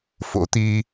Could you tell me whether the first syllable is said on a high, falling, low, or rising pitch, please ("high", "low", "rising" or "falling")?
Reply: rising